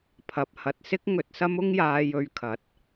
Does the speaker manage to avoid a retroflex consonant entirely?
yes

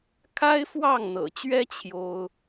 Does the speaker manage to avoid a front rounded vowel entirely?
yes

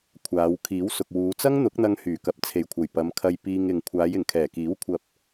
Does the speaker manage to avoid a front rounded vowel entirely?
no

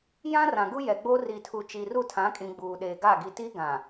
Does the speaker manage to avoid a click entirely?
yes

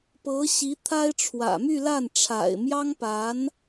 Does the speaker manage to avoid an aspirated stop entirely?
no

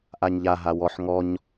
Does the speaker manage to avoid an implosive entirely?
yes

